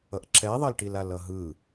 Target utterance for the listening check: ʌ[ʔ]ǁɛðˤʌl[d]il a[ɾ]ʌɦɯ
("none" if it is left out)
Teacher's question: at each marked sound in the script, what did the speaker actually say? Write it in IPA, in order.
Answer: ʔ, ʈ, l

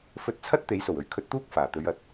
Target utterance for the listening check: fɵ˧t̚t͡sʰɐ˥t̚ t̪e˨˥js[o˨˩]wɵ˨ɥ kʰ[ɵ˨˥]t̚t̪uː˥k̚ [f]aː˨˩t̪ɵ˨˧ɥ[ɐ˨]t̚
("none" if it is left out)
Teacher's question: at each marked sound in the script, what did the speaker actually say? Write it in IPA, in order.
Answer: o˨˩, ɵ˧, f, ɐ˨

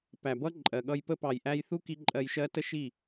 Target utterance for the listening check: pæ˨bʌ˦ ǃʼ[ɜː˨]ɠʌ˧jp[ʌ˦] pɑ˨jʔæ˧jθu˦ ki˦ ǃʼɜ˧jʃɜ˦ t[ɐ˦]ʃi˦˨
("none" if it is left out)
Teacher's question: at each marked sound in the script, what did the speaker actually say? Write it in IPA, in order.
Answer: ɜ˨, ə˦, ə˦

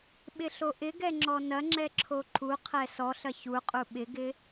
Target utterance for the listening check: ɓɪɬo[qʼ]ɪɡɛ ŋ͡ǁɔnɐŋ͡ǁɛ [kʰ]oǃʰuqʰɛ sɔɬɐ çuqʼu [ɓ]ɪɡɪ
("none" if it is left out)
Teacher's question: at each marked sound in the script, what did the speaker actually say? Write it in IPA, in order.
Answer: ʔ, ǁʰ, ɓ

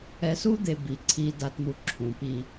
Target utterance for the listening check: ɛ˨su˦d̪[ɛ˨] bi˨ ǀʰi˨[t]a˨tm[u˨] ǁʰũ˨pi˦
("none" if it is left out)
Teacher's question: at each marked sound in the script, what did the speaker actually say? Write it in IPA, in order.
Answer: e˨, d, u˨

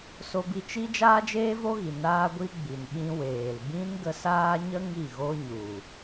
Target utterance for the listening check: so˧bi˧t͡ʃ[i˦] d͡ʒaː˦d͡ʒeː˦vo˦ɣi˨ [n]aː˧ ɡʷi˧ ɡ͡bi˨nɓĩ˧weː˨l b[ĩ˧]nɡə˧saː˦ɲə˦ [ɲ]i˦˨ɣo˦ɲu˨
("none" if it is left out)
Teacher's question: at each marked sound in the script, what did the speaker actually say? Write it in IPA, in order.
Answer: i˦, n, ĩ˦, ŋ

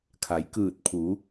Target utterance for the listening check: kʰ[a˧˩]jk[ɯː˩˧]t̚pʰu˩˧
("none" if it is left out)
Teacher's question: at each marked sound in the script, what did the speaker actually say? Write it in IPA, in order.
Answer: a˩˧, ɯː˧˩

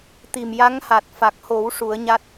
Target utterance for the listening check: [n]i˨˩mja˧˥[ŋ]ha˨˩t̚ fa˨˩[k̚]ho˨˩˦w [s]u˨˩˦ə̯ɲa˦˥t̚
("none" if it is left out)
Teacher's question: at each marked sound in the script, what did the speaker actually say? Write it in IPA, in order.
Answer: t̪, ŋ, k̚, ʂ

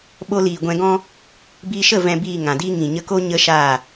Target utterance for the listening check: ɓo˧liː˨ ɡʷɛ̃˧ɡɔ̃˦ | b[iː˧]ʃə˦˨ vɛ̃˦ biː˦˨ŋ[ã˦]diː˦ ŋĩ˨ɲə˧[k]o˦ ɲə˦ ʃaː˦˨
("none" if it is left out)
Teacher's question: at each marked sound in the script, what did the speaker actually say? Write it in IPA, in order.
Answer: iː˧, ã˨, k

